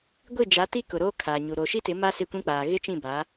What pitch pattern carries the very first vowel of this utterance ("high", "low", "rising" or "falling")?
falling